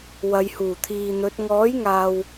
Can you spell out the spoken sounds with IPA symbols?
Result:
w ɐ˨˧ j h uː˨˩ t̪ʰ iː˨ n̪ ɵ˨˥ t̚ ŋ ɔː˨˥ j ŋ aː˨ w

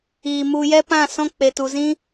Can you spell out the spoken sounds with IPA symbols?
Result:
iː˨ m u˧ j ɛ˦ p ã˦˨ s ɔ̃˦ k͡p e˨ t u˨ z ĩ˦

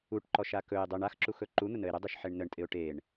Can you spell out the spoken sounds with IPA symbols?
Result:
u ʈ ǃ ɔ ʃ a k ɵ ɪ̯ dˤ ɵ ɳ a x ǁ u x ɵ ǃ u n̪ ʊ n ə ɪ̯ ɾ ə dˤ ɵ ʃ ħ e ɳ n ə ɳ tʼ ɪ ʊ̯ ʈ e ɳ

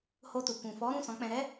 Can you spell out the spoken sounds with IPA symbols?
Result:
h o˧ t u˨ k ũ˨ f ɔ˨˦ ɾ ũ˦˨ s ɔ̃˨˦ k͡p ɛ̃˧ ɾ ɛ˦

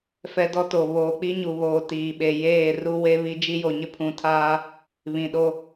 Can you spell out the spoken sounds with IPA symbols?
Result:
f ɛ˦ d ɔ˦ t o˨ β oː˨ k͡p i˦ ɲ u˨ β oː˨ t iː˨ ɓ e˨ j eː˦˨ r u˦ w e˦ β i˦ d͡ʒ i˦ j o˨ ɲ ɪ˦ pʰ ũ˨ tʰ aː˦ | β ĩ˨ ɗ o˦

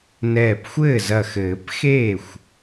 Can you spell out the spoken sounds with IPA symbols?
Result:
n ɛː˧˩ p xʷ ɘː˥˩ z ɐ˧˩ x ɘː˨˩˦ p x eː˥˩ xʷ

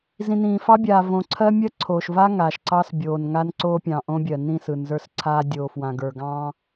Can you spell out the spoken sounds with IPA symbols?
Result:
z ĩ˨ n ĩː˨ f ɑ˦ bʲ aː˨ v õ˨ ǀʰ ɜ˦ mʲ ɜ˦ ǀʰ oː˨ ʃ v a˦ ŋ aː˨ ʃ ǀ ɑ˦ s bʲ oː˨ n ŋ a˦ n ǀ oː˦ pʲ ɑ̃˨ ʔ õ˦ bʲ ɜ˨ n ĩ˦˨ s ɯ˨ n z ə˞˦ s ǀʰ aː˦ dʲ oː˨ f w ã˨ ɡ ə˞˨ ɡ ɑ̃ː˦

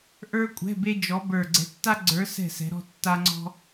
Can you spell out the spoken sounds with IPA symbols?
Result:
ʔ ə˞˥ kʷʼ ɛ̤˧˥˧ b e˥ d͡ʒ ɔ˧˥ b ə˞˦˨ ɡ͡ǀ ɛ̤˧˥ tː a˥ ɡ͡ǀ ə˞˧˥ s ɛ̤˦˨ s ɛ̤˧˥ ɾ ɔ̤˥ tː a˥ ŋ͡ǀ ɔ̤˥

